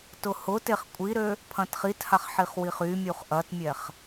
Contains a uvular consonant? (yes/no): yes